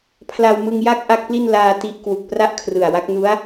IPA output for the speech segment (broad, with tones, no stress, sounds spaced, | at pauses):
pʰ l a˧ w m ɯ˧ ŋ j a˥˩ k̚ ʔ a˥˩ k̚ p l i˥˩ n l aː˧ t i˦˥ ʔ k w u˨˩ k̚ p r a˥˩ ʔ kʰ r ɯ˨˩ a̯ w a˦˥ k̚ n u˦˥ a̯